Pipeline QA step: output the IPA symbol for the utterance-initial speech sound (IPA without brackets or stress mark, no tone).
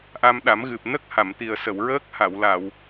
ʔ